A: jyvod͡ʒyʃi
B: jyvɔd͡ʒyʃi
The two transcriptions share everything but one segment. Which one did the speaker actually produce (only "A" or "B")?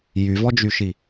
B